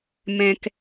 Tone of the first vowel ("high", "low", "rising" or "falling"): low